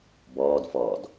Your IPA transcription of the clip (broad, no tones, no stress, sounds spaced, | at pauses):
b ɔː d f ɔː d